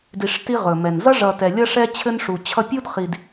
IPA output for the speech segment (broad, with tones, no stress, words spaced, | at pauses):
di˨ʂ ti˦ʁɵ˨mɛ˨n zʌ˦ʐʌ˨ tɛ˨lʲʌ˦ʂɛ˦ t͡ɕʰɘ˦nʂu˨ t͡ɕʰʌ˦ pʲu˦dχi˨d